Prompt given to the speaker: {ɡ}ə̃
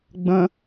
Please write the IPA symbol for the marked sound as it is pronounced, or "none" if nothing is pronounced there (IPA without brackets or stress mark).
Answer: ɡ͡b